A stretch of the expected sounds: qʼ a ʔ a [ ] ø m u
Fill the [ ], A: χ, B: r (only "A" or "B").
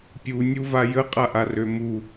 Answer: B